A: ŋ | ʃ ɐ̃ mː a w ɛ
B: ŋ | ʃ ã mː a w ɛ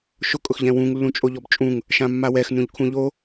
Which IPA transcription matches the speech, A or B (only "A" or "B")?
B